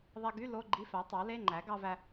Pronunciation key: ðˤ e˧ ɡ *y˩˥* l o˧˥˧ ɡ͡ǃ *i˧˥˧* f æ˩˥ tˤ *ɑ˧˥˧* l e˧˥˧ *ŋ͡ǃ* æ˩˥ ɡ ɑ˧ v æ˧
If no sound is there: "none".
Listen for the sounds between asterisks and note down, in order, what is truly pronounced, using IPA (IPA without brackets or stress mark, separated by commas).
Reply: y˧˥˧, i˧˥˧, ɑ˩˥, ŋ͡ǃ